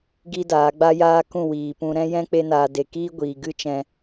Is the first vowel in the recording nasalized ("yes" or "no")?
no